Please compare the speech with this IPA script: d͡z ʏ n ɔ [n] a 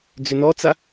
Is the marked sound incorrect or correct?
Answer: incorrect